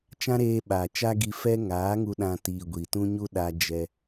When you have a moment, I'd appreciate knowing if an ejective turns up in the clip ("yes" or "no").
no